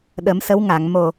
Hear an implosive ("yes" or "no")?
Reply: yes